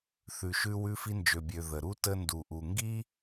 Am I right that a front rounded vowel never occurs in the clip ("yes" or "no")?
no